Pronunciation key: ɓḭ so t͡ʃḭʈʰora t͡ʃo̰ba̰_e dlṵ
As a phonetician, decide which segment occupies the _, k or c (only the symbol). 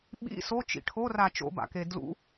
k